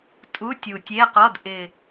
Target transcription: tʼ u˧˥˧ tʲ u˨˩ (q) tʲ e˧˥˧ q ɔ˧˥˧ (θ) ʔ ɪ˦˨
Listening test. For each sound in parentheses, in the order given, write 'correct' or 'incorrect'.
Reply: incorrect, incorrect

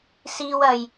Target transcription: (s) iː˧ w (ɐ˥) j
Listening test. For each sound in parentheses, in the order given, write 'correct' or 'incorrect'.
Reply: correct, incorrect

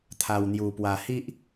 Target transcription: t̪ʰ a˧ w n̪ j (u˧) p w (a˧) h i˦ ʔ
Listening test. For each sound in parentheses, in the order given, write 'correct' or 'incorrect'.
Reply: correct, correct

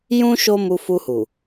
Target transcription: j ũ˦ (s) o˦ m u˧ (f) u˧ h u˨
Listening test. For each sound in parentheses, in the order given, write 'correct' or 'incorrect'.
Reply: incorrect, correct

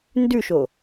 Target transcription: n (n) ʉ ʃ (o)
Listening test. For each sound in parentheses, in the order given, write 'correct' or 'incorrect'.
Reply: incorrect, correct

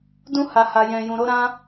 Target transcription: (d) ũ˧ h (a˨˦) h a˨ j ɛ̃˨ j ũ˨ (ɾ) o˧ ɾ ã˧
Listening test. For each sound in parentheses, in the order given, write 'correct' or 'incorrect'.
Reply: correct, incorrect, correct

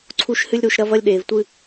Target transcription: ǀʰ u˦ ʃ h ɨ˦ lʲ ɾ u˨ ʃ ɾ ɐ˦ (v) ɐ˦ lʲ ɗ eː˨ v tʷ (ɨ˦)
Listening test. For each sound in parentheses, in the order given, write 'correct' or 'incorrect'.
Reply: correct, correct

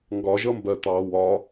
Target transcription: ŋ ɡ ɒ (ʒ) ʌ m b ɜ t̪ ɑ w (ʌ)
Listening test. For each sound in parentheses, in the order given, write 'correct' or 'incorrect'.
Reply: correct, incorrect

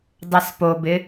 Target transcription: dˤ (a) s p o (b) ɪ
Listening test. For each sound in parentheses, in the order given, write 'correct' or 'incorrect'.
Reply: correct, correct

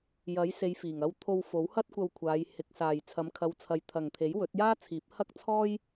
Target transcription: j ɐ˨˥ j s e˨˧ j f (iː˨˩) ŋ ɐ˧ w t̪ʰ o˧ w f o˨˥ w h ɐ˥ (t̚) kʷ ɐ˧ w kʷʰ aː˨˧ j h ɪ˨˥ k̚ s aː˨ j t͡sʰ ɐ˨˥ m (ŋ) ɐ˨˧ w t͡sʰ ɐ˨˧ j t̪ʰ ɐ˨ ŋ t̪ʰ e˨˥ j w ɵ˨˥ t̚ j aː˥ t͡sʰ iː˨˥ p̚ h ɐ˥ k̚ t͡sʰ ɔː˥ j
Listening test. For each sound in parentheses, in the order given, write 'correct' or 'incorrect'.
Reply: correct, correct, incorrect

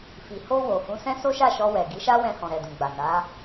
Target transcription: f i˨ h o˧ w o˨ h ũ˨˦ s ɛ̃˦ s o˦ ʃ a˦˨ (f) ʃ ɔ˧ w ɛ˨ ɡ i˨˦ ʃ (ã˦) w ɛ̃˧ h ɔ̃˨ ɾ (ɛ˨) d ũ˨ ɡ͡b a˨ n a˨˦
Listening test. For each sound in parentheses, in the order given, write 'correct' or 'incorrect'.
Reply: incorrect, incorrect, correct

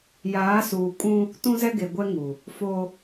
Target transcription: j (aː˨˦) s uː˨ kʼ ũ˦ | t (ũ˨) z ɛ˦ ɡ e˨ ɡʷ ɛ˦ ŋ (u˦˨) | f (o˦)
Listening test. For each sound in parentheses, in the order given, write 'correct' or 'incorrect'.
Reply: correct, incorrect, incorrect, correct

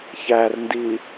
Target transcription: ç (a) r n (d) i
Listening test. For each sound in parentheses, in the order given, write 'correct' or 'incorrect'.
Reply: incorrect, correct

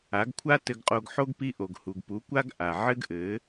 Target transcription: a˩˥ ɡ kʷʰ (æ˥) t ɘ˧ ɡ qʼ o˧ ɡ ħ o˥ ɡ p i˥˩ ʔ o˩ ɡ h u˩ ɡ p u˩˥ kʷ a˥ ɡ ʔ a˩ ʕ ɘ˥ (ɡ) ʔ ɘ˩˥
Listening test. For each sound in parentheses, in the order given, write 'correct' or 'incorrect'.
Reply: incorrect, correct

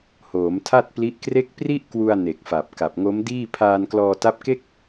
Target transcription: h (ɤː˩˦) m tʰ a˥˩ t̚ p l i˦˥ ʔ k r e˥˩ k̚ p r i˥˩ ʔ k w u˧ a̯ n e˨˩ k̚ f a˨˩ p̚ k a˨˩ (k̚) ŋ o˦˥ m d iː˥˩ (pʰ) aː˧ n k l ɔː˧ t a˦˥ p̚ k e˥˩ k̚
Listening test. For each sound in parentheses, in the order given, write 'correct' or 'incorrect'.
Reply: incorrect, incorrect, correct

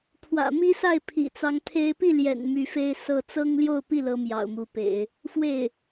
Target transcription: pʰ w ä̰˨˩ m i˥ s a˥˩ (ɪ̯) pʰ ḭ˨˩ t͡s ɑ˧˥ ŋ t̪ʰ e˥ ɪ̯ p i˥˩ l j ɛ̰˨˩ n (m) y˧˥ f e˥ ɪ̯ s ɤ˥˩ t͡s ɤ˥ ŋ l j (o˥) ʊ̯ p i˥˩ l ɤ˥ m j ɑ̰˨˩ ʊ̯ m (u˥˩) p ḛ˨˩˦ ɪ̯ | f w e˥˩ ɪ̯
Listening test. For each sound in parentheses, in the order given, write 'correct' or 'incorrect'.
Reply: correct, correct, incorrect, incorrect

